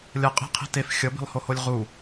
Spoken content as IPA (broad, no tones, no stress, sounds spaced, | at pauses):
lʲ ʌ qʼ i̤ qʰ i̤ t e f xʲ ʌ b i̤ lˠ h o h o lʲ ʁ u